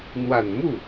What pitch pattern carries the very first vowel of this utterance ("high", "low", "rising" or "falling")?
low